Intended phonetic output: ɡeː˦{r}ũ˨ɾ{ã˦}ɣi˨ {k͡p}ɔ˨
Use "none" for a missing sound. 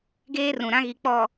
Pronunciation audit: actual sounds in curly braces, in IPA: r, ã˦, k͡p

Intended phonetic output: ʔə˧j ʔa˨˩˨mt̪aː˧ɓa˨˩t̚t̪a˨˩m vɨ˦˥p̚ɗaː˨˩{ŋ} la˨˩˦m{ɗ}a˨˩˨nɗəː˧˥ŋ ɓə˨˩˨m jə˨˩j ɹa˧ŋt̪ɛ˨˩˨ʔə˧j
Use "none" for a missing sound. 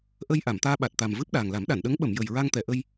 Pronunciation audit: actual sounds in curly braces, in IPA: ŋ, ɗ

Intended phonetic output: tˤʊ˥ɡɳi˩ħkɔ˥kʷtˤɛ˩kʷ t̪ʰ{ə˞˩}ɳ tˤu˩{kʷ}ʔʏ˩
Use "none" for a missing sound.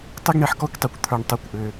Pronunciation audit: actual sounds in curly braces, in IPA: ə˞˩, kʷ

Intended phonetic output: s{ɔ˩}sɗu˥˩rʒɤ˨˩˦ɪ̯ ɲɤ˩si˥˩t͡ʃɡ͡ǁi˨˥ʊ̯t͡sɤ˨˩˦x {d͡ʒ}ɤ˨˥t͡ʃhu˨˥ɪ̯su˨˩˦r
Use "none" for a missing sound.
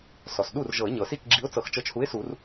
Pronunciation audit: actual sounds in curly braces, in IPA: ɔ˩, t͡ʃ

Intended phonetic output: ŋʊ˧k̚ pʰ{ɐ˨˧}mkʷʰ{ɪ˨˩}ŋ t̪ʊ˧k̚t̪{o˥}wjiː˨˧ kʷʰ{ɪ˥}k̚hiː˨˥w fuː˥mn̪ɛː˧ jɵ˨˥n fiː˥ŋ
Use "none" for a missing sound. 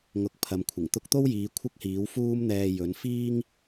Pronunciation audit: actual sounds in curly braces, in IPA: ɐ˨˧, ɪ˨˩, o˥, ɪ˥

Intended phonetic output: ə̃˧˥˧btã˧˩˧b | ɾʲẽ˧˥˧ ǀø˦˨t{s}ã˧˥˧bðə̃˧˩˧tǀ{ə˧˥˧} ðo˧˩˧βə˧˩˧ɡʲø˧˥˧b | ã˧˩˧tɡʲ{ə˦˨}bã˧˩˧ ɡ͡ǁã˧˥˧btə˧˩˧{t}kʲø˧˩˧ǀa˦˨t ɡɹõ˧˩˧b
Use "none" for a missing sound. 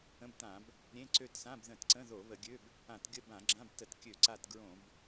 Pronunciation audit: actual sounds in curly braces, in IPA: s, ə̃˧˥˧, ə˦˨, t

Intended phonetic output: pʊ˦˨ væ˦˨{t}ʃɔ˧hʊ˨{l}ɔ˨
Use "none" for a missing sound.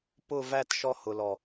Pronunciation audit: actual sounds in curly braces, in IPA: t, l

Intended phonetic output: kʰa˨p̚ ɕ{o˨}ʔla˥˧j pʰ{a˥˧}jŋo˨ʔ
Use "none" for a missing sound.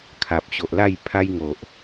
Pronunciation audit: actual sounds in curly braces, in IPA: o˨, a˦

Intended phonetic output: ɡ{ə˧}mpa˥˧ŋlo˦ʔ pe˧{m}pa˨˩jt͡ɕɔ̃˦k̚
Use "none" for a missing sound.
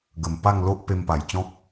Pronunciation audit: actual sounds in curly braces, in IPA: ə˨˩, m

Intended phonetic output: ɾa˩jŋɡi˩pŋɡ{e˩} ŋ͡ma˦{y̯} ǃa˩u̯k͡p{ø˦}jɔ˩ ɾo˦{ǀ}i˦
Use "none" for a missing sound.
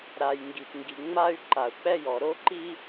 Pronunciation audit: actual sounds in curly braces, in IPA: i˩, y̯, ɛ˦, ǃ

